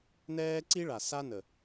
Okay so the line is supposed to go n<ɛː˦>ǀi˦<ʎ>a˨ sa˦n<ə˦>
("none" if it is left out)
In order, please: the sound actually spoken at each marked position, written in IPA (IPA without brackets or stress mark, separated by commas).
ɛː˦, ɭ, ə˨